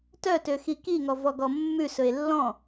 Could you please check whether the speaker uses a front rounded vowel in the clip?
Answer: yes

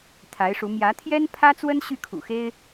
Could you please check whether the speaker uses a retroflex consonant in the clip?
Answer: yes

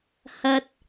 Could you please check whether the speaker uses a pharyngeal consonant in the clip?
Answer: no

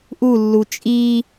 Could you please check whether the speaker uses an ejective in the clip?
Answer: yes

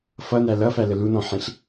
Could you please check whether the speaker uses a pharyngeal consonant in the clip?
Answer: yes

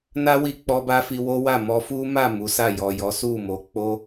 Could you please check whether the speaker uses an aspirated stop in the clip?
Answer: no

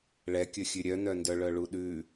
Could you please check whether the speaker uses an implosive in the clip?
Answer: yes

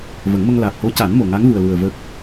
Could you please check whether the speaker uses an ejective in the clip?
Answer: no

